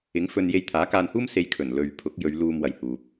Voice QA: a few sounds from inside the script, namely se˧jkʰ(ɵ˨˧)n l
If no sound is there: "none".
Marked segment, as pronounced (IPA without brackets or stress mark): ɵ˨˩